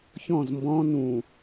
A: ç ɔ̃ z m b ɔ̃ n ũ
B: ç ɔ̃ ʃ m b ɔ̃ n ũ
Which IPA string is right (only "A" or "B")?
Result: A